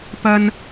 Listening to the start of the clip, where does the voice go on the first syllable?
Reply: high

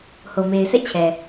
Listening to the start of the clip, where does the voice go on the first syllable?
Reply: low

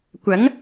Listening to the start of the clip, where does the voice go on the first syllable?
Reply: rising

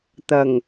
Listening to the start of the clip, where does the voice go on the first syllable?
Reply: low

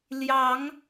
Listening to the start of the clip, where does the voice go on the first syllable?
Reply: rising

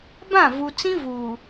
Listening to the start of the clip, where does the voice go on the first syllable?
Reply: falling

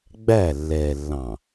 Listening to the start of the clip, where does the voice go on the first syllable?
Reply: falling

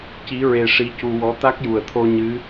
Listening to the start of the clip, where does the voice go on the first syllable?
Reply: rising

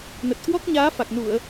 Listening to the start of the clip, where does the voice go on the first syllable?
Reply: low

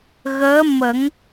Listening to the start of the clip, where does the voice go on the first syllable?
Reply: rising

